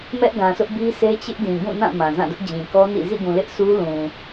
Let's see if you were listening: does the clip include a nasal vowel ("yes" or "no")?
yes